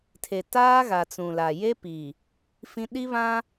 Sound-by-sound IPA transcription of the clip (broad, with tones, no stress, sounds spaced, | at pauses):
tʰ e˨ t aː˦ ɣ a˨ t͡s ũ˨ l a˨ j e˦ p i˨ | f ĩ˦ ɗ i˦ β ã˦